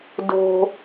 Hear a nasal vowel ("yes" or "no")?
no